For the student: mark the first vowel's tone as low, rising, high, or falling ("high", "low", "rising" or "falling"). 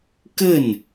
falling